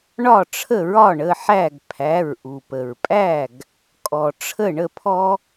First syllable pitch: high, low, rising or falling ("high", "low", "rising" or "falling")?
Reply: falling